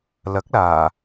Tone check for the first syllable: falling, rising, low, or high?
rising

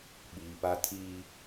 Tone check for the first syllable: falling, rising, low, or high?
low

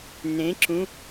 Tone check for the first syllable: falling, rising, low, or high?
rising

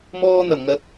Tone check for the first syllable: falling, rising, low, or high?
high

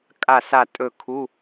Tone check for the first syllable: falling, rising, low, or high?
falling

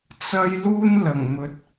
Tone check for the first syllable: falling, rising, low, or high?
high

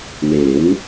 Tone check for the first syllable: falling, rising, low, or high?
rising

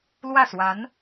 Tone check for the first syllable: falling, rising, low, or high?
falling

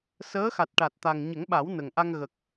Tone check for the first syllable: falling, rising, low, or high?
rising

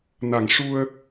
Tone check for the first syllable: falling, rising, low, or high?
low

